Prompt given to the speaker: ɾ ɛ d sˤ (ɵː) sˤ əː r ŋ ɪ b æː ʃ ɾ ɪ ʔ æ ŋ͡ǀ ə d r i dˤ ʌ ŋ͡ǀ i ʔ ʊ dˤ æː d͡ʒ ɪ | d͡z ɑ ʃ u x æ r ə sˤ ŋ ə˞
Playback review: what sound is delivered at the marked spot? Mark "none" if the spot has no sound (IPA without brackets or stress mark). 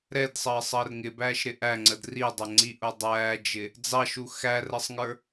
əː